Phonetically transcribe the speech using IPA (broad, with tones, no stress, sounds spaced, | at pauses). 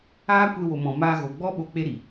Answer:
aː˦ kʷ e˧ w o˨ m ɔ̃˨ m aː˧ ɣ o˨ ɡ͡b ɔ˦ ɓ o˧ k͡p e˦ ɾ i˨